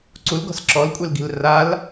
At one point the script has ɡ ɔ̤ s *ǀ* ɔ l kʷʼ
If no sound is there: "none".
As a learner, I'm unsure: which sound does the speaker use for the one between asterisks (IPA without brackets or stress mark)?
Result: ǁ